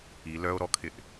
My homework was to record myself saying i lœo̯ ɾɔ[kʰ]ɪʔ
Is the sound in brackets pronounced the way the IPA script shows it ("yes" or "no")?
yes